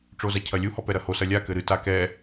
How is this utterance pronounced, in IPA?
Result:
ʈ͡ʂ o z a cʰ ɐ lʲ u h ɔ p ɛ ɾ ɐ h o s ɐ lʲ a k ɘ ɾ ɨ t a k ɛ

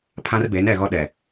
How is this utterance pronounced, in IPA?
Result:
pʰ ã˦ r b e˨˦ n ɛ˨ ɣ ɔ˦ ɗ ɛ˨

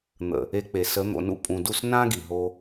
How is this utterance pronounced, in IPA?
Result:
n̪ ə̰˨ | e˧ k͡p e˨ s ə˨˦ n̪ o̰˨ n ṵ˧ pʼ ũ˨ d u˦˨ s n ã˦ ɡ i˨ ɦ o˧

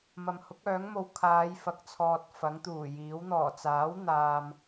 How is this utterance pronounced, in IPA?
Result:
m ɐ˨ m h ʊ˨˥ k̚ œː˨˥ ŋ m o˧ w kʰ aː˨˧ j f ɐ˨ k̚ t͡sʰ ɔː˨ t̚ f ɐ˨˥ ŋ t̪ uː˨˩ j iː˨˥ w n̪ ɔː˨˩ t͡s aː˨˥ w n̪ aː˧ m

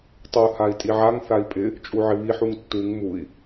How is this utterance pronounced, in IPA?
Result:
tˤ u h a i̯ tʼ i ʕ a ŋ θ a i̯ pʼ ɪ | t͡ʃʼ u ʕ ɪ β i ħ u ŋ tː u ŋ m u i̯

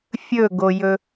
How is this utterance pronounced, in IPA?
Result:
fʲ ɵ ɡ o j ɵ

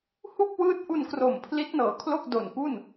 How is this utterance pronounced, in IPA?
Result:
h u˥˩ k̚ w ɯː˦˥ t̚ ʔ u˧ n k r o˨˩ m pʰ l i˦˥ t̚ n ɤː˨˩ kʰ l o˥˩ k̚ d o˨˩ n p u˥˩ n

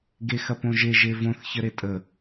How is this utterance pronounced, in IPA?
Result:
ɡ e x ɐ p õ ʒ e ʒ e v õ θ ç ə ɾ e tʼ ə

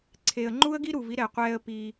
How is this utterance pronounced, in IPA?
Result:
ǀʰ e˨ ə̯ ŋ͡ǃ u˦ ə̯ ɡ i˦ ɾ u˨ v i˦ ɾ ɛ˨ qʷ ɛː˦ ə̯ p i˦

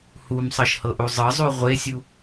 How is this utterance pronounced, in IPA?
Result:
h u m sˤ ɤ ʃ h ɤ ʔ u zˤ ɤ zˤ u ʁʷ e sʲ u

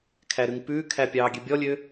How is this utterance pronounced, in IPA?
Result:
kʰ æ ɾ ʉ ŋ p ʉː kʰ æ pʲ ɑː ɡʲ ø bʲ ɔ lʲ ø

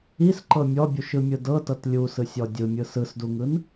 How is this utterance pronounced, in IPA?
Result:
i s ǃ ɤ mʲ ɔ bʲ u ʃ ɯ mʲ ɯ d ɤ t ɤ t lʲ u s ɯ sʲ ɔ dʲ ɯ mʲ ɯ s ɯ s d u ŋ ɯ n

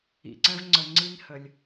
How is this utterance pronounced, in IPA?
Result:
ḭ˨ ǀ ɛ̃˦ v ŋ͡ǀ ə˨ ŋ͡ǀ i˦ n h ə˩ lʲ

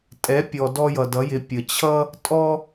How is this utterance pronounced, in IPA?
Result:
tʼ ɛ˧˥ pʲ ɔ˧ d ɔ˥ j ʌ˧ d ʌ˧˥ j ɪ˧˥ pʲ ə˧ t͡ɕʰ ʌ˥ | tʼ ɔ˥

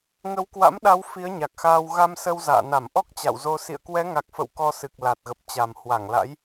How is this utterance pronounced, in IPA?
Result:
ŋ ə˨˦ w k w a̰˧˥ m ɗ a˨˦ w f i˨˦ ə̯ ɲ a˨˩ k̚ x aː˧ w ɣ a˧ m s ə˧ w z a̰ː˧˨ n a˧˩ m ʔ ɔ˦˥ k̚ t͡ɕ a̰˧˨ w z o˧ s ḭ˧˨ ə̯ k w ɛ˨˦ ŋ a˨˩ k̚ f ə̰˧˨ w k ɔ˧ s ɨ˨˩ k̚ l a˨˩ t̚ ɣ ə˨˩ p̚ t͡ɕ a˨˩ m h w a˧˩ ŋ l a̰˧˥ j

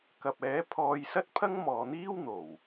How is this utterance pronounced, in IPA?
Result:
k ɐ˨ p̚ ɛː˨˥ pʰ ɔː˧ j s ɐ˥ t̚ pʰ ɐ˥ ŋ m ɔː˨ n̪ iː˥ w n̪ o˨˩ w

